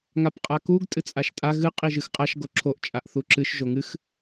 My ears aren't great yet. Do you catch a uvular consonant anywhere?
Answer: yes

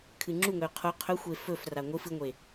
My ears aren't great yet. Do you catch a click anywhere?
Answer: yes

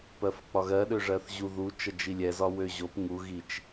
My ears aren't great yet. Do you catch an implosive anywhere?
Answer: yes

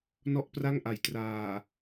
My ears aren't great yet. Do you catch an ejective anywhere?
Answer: no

